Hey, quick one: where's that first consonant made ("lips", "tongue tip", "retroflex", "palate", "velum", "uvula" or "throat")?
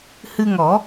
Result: throat